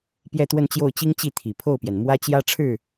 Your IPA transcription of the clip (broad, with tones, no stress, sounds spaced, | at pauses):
p j ɛ˥˧ t̪ w ə˥˧ n t͡ɕ j o˥˩ ʊ̯ t͡ɕ i˥ ŋ t͡ɕ i˥˩ t̪ʰ i˨˩ pʰ o˥˩ ʊ̯ p j ɛ˩ n m w ä˥ t͡ɕ j ä˥ ʈ͡ʂʰ ɻ̩˥˩